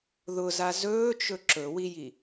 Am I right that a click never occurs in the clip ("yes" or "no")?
no